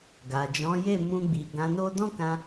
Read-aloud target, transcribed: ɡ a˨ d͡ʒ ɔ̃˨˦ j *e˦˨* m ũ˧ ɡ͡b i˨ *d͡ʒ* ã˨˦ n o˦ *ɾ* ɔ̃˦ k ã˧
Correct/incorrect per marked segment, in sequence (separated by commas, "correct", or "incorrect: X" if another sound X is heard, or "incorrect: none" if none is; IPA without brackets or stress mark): correct, incorrect: ɡ, incorrect: d